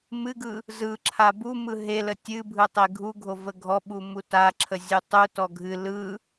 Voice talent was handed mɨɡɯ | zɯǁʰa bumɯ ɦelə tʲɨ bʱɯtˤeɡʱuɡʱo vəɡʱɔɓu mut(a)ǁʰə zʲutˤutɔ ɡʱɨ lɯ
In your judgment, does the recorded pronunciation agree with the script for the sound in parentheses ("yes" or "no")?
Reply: yes